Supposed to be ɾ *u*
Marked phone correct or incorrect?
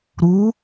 correct